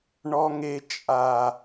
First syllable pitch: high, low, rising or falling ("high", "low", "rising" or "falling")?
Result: high